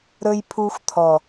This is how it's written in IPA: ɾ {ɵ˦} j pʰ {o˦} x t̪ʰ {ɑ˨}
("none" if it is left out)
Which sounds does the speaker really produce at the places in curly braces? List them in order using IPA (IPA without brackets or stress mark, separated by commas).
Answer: ɵ˦, u˦, ɔ˨